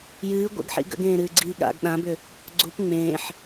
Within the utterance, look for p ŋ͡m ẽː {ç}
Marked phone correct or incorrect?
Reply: incorrect: ħ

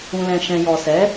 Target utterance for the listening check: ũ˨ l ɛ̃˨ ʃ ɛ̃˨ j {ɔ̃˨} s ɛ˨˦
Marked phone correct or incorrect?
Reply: incorrect: ɔ˨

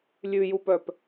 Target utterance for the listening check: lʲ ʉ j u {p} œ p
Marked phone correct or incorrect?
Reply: correct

